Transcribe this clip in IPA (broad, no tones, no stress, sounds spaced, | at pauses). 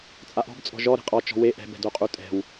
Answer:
t͡sʼ a ʔ ɔ̤ b t͡sʼ ɔ̤ ʒ ɔ ɾ e̤ qʼ ɔ t͡ʃ ɔ̤ w e ʔ ɛ̤ b ɛ̤ d o qʼ u tʼ ɛ̤ w